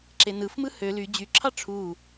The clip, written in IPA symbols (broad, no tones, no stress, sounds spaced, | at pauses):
ǁ e n ɯ f m ɯ h ø l y d͡ʑ y ǁʰ ɑ ʈ͡ʂʰ u